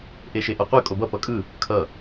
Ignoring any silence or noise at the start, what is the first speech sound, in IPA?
ʔ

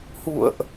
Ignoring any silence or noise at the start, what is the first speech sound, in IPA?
h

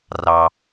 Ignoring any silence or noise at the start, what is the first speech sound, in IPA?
r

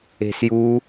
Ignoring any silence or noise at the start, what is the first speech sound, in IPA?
e̤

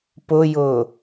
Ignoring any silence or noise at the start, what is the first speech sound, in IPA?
p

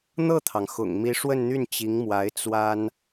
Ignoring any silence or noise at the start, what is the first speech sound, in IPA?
n̪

